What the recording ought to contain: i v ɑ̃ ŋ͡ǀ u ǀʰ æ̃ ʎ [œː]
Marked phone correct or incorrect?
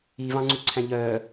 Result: correct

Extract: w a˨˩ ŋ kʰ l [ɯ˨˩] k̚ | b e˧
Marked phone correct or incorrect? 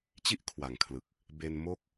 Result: correct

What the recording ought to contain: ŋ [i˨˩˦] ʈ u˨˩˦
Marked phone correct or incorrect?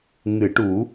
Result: incorrect: ɨ˨˩˦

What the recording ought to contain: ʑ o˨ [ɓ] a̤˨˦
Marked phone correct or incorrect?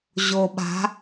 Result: correct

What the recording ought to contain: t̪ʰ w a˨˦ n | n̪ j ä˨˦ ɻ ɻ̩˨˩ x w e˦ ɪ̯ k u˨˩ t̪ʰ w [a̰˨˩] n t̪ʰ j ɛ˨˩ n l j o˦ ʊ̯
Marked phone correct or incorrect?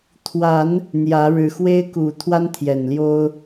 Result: incorrect: a˦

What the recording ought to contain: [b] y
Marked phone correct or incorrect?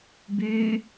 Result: correct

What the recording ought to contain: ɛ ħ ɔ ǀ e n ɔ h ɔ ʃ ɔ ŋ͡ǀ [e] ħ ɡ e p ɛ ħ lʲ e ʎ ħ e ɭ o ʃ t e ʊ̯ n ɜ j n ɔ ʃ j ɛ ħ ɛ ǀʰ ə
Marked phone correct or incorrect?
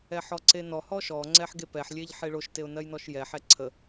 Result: incorrect: ɛ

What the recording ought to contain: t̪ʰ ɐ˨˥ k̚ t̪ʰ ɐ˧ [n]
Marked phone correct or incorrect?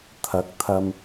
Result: incorrect: m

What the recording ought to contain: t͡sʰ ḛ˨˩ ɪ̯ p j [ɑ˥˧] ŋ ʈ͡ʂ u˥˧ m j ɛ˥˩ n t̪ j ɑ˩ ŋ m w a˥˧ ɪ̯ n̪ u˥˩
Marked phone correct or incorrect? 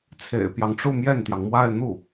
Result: incorrect: ɑ˦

